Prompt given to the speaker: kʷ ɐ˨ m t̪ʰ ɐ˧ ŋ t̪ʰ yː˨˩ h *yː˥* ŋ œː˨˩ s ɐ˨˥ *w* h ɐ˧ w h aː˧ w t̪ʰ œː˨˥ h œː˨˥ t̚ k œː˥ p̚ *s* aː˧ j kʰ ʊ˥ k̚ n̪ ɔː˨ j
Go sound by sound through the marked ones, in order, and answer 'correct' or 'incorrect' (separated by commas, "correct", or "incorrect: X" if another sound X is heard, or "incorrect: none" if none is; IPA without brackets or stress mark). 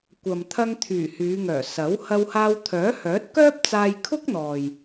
incorrect: yː˨˧, correct, incorrect: t͡s